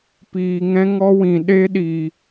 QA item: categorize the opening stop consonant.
plain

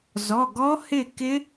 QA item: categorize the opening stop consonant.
plain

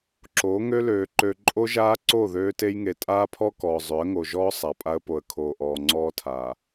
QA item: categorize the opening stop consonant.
click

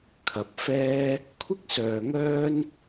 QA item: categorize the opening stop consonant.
aspirated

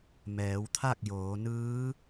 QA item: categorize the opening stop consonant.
aspirated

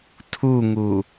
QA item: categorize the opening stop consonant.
aspirated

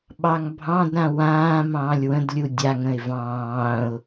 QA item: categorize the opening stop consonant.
implosive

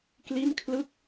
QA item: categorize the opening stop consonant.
plain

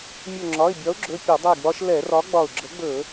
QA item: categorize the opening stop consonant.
click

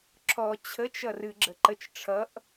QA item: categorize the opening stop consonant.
click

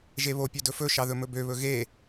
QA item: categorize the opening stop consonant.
plain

